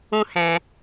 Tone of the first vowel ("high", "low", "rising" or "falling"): high